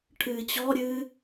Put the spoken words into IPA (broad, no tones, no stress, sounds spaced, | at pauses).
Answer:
ʈʰ ɨː t͡ɕ ɔ ɾʲ ɨː